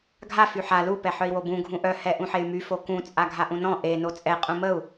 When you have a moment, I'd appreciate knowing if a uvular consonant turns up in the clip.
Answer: yes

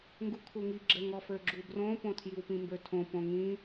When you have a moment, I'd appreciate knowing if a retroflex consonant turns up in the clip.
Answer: no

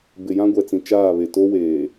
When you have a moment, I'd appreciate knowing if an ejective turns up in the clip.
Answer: no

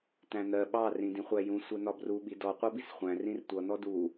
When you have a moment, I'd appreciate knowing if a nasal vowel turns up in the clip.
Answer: yes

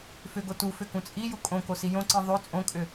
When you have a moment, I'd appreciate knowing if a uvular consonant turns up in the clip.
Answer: no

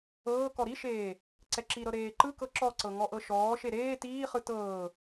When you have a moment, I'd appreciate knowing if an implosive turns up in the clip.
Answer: no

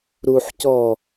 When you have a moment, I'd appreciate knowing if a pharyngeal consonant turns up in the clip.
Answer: yes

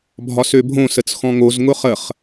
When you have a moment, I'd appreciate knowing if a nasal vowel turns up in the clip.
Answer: yes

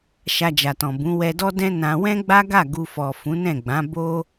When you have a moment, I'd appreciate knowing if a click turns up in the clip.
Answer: no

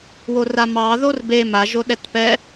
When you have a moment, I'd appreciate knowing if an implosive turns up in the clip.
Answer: yes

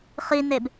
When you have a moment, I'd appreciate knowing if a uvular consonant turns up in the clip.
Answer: yes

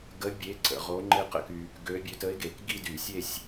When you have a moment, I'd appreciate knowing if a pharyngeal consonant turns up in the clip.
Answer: no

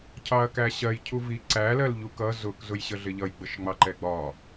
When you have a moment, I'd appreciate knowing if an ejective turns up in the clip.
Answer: no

